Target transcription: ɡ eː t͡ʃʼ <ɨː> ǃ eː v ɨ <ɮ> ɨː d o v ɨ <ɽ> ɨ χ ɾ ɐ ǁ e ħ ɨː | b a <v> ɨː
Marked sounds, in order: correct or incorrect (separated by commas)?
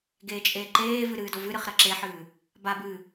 incorrect, incorrect, incorrect, incorrect